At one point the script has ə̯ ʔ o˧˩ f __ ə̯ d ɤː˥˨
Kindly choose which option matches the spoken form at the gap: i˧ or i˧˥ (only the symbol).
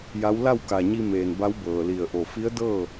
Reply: i˧˥